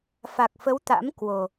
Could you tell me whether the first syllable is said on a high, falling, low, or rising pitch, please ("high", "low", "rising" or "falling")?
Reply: low